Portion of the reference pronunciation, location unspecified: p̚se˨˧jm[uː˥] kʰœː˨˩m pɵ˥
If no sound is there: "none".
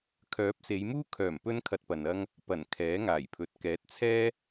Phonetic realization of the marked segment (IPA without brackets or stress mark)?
uː˥